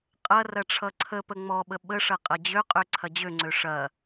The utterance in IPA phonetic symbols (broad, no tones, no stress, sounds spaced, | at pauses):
qʼ ɐ r ɐ ʈ͡ʂʰ ʌ ǀʰ ə p ə ŋ͡m ɔ ɓ ə ɓ ə ʂ ɐ qʼ ɐ d͡ʑ ø qʼ ø ǀʰ ɐ d͡ʑ ø ŋ͡ǀ ø ʂ ɐ